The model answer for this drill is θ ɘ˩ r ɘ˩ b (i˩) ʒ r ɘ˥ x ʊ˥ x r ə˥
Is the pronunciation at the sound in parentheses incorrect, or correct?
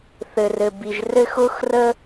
correct